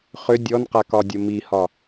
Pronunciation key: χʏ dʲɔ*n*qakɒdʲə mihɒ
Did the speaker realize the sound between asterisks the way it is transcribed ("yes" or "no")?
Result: yes